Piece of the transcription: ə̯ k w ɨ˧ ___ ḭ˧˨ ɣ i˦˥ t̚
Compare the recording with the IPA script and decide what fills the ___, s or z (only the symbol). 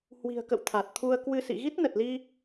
s